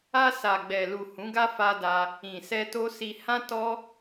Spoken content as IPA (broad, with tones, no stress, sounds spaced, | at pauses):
a˧ s a˨ ɡ͡b ɛ˨ l u˨ h ũ˨˦ ɡ a˦ f a˧ d a˧ | ĩ˨ s ɛ˧ t o˦ s i˧ h ã˦ t ɔ˦